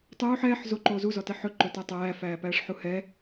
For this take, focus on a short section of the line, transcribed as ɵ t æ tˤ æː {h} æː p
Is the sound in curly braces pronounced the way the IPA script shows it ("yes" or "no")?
no